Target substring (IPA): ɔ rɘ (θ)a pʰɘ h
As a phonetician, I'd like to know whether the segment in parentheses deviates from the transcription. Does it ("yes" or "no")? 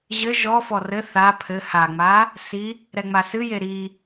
no